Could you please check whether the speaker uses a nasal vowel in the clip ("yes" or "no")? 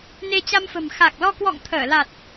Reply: no